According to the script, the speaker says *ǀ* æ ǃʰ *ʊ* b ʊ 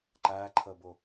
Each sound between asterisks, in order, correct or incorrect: incorrect: ǃ, incorrect: ə

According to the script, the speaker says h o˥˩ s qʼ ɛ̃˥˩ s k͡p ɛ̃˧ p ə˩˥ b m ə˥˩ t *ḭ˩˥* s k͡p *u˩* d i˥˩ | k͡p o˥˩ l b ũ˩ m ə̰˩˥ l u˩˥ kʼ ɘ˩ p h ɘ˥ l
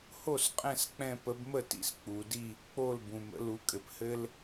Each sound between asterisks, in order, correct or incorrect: correct, correct

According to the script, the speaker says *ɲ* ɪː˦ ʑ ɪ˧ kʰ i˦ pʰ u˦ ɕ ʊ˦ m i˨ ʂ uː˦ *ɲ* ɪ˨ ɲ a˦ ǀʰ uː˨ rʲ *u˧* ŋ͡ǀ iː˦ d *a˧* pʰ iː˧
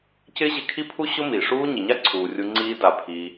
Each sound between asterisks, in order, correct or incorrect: incorrect: c, correct, correct, correct

